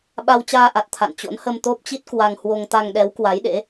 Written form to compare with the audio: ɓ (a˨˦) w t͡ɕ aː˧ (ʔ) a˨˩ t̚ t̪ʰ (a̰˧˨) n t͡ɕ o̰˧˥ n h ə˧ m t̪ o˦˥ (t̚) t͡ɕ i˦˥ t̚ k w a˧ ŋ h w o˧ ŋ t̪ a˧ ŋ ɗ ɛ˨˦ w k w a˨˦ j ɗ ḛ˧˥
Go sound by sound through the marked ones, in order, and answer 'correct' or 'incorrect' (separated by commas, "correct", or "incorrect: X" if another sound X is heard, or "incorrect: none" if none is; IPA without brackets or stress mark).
incorrect: a˧, correct, correct, incorrect: p̚